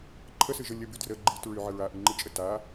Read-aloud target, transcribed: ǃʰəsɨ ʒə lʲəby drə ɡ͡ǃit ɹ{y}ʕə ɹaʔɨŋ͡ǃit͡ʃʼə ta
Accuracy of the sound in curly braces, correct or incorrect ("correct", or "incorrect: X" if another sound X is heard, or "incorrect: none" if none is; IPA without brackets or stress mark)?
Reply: correct